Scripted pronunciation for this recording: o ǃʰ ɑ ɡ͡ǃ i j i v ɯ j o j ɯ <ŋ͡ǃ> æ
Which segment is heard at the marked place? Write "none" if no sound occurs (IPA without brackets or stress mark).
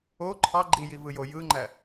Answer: ŋ͡ǃ